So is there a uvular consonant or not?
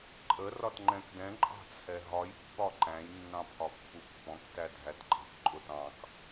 no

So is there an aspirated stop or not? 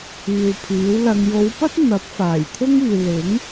yes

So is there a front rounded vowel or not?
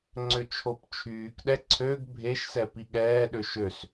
yes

